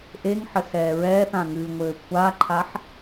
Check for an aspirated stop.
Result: present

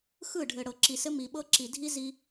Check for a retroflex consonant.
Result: present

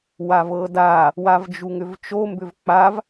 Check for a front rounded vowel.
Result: present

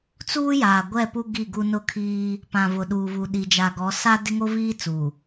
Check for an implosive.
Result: present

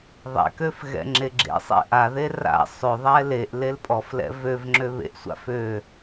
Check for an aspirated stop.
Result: absent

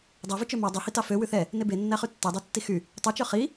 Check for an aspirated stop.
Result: absent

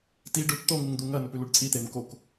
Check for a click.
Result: absent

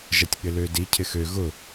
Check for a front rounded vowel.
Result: present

